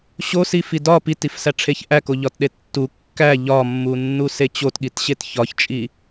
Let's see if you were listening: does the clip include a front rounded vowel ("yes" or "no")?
no